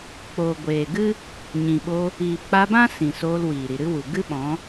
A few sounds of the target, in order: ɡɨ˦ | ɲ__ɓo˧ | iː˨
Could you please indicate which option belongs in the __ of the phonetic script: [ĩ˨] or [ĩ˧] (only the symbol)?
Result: ĩ˨